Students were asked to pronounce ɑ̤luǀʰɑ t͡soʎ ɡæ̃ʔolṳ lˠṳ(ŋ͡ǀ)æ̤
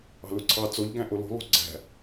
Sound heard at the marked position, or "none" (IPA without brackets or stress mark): ɡ͡ǀ